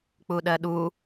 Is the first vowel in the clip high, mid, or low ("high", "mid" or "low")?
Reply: high